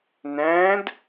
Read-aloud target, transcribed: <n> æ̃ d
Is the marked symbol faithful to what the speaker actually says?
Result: yes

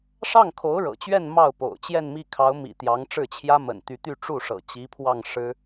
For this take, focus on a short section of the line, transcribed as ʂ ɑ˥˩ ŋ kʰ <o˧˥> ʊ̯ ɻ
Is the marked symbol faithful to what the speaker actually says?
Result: yes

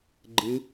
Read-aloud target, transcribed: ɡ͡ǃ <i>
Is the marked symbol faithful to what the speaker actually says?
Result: no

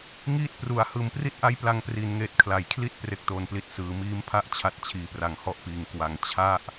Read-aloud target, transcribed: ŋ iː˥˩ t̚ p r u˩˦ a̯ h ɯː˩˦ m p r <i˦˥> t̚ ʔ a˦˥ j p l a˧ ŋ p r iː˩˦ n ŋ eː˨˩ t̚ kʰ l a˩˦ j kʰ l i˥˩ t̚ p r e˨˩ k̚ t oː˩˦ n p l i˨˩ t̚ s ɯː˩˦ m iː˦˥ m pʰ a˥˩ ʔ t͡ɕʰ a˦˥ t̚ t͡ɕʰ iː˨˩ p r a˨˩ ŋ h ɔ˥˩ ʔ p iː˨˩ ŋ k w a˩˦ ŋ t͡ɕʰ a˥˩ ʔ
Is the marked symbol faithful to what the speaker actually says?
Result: yes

